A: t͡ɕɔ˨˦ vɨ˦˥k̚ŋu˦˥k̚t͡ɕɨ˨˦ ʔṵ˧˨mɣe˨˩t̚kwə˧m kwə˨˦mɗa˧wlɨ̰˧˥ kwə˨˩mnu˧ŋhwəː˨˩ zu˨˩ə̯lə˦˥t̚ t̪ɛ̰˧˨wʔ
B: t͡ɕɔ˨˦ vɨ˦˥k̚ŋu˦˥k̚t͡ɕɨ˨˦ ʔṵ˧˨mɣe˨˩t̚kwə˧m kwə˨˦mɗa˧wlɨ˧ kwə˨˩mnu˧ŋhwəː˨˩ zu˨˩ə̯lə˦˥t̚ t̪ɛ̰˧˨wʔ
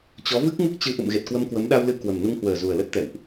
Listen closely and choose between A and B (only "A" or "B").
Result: B